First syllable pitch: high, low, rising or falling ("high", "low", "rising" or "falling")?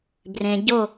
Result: low